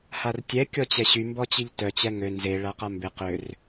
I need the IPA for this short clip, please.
h a r tʲ ɛ kʲ ɔ t͡ɕ ɛ ɕ y m b ɔ t͡ɕ i ʎ t œ t͡ɕ ɛ ŋ ø n z e ɭ a q a m b ɪ q ø r

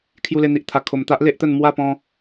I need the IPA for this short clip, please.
kʰ j u˧ l e˧ n̪ i˨ ʔ t̪ʰ a˨˩ kʰ o˨˩ m t̪ a˦ ʔ l e˦ ʔ t̪ ə˥˧ n m w a˥˧ p ɔ̃˧

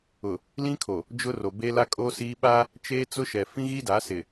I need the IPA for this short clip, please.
ʊ˨ | l ĩ˦ kʰ o˨ | d͡ʒ ʊ˦ r o˨ b e˦ l a˦ kʼ oː˦ s iː˦ ɓ a˦ | t͡ʃ eː˦ t͡s ʊ˦ ʃ ɛ˨ f ĩ˦ ɣ i˦ d a˨˦ s ɪ˨

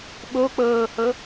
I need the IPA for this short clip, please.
ɓ o k͡p ɤː h ɤ

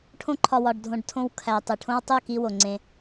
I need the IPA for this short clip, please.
ʈʰ õ˧ ǃʰ ɒ˨ w ɒ˨ ɖ dʱ õ˨ ɖ tʰ õ˧ w kʰ æ˨ tˤ i˨ ʈʰ õ˦ w tˤ u˦˨ k i˧ w o˨ ŋ͡ǀ ẽ˧

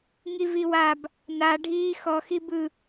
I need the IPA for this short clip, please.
ŋ i v i w a b | n a ɖʱ iː x ɔ x i b ɯ

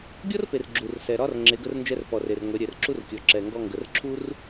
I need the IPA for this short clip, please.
ɡʲ ɔ˥ r p e˩ r ɡ͡ǁ u˩ r s ɛ˩ ɾ ɒ˧ r ŋ͡ǁ e˩˧ ɡ ə˧ r n d͡ʒ ɛ˧ r p ɔ˩ r e˩ r ŋʷ ɛ˩˧ ɾʲ ɛ˩ r ǁ u˧ r kʲ ɔ˩ ǁ ɛ˩ ŋ ɡ ɔ˧ ŋ ɡ ə˩ r ǁʰ u˥ r

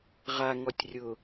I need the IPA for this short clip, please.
ʁ a ŋ ɔ tʲ rʲ ʊ

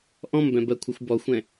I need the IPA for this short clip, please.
ʔ ɔ̃ m b ɛ̃ b ɜ kʷʰ ɨ xʷ b ɔ xʷ ɛ̃

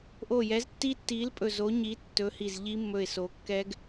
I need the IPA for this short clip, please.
ʔ o˧˩ j ɛ˨˥ z tː i˦˥ tː i˨˥ l pʼ ɵ˧˩ z o˨˥ ɲ i˨˥ tː ɵ˨˥ h i˧˩ z ʎ i˦˥ mː ɵ˧˩ ɪ̯ s o˩˧ kː ɛ˦˥ ɡ

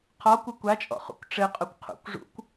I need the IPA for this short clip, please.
qʰ ɔ kʷ ɘ kʷ a t͡ʃʼ ɔ̰ χ ṵ kʷ ʈ͡ʂ ɘ qʼ u kʷ qʰ ṵ kʷ ʐ ṵ kʷ

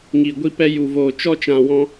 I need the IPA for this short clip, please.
ŋ i˨ ɡʷ i˧ p ɛ˧ j u˨ v oː˨ t͡ʃ ɔ˧ t͡ʃ ã˨ w ɔ̃˧

